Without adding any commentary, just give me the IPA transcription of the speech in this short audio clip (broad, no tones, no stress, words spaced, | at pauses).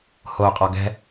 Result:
hoqʼɔ ɡɛ̤